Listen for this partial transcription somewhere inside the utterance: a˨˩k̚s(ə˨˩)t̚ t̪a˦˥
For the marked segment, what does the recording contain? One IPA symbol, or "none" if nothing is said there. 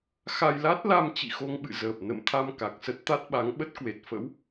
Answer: ə˦˥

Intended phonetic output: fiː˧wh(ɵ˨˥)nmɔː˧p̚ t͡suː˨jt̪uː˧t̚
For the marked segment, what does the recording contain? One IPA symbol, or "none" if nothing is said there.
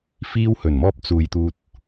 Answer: ɵ˨˩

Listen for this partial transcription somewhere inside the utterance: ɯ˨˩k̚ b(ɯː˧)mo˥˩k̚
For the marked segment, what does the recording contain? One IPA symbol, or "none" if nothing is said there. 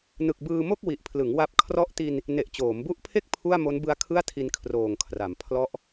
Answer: ɯː˧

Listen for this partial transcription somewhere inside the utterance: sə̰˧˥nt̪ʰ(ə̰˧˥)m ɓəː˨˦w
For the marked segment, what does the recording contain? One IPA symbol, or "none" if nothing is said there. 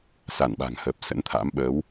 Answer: a̰˧˥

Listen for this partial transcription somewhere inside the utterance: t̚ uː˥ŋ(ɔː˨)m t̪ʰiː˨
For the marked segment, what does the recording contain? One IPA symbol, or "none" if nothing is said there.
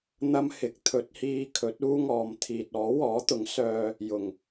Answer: ɔː˨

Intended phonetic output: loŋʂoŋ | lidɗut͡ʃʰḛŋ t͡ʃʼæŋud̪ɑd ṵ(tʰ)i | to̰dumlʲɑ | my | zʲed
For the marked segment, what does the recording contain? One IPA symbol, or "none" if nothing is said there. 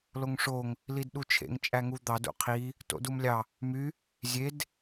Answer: qʰ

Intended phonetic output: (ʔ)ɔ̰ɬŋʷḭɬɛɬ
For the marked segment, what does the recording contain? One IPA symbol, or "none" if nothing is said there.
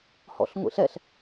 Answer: h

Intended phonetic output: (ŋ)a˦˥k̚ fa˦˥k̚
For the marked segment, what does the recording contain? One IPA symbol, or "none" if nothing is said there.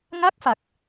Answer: ŋ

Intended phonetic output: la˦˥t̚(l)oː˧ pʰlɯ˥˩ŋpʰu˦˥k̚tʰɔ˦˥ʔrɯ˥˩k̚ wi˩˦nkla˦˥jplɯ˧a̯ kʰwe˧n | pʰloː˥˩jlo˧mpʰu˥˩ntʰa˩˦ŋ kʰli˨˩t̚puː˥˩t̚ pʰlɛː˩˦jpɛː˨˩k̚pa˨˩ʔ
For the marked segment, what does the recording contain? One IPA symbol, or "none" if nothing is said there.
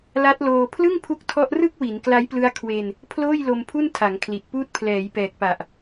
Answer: l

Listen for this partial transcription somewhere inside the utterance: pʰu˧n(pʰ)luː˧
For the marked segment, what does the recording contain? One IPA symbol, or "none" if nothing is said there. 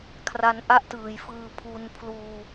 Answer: pʰ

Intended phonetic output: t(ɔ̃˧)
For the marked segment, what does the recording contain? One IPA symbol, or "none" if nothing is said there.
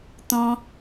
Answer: ɔ̃˧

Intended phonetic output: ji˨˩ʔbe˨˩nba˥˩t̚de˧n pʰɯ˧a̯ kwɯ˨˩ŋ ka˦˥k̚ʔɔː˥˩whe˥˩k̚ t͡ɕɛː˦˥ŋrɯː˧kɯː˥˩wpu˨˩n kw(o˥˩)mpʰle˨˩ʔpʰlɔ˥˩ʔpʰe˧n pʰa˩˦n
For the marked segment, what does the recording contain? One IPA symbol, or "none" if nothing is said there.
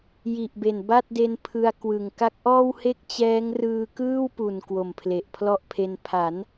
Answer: o˨˩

